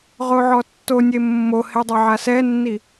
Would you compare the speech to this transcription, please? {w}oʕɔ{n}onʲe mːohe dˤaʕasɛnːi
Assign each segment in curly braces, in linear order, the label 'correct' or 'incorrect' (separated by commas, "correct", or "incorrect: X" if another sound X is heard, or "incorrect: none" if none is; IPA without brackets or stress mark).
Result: incorrect: ʁ, incorrect: tː